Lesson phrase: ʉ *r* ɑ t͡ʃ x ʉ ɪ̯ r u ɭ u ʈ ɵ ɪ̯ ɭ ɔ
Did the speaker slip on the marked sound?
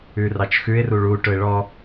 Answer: no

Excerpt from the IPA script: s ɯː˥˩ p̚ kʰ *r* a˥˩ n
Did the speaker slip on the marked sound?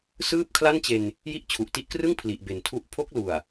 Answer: yes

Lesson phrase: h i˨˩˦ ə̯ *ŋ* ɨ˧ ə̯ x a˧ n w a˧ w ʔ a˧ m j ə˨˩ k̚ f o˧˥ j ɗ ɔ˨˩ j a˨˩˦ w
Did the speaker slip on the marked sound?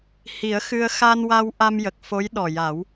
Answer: yes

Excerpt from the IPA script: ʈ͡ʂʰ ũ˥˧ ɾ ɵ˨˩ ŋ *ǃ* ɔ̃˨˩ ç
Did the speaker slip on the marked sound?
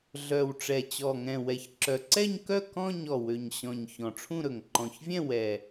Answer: no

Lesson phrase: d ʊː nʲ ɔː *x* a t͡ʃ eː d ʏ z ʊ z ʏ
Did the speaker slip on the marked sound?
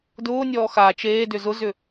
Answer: no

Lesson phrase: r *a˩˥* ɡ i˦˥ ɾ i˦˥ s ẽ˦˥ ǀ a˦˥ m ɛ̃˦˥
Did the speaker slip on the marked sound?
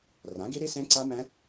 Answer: yes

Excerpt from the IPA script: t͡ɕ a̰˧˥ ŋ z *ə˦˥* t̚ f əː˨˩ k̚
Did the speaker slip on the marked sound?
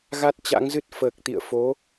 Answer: yes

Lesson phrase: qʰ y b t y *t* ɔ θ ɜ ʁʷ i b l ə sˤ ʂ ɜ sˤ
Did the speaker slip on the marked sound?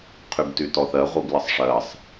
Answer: no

